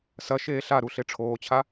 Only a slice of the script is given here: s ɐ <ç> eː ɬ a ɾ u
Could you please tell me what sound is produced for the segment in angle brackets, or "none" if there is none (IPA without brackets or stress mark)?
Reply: ʃ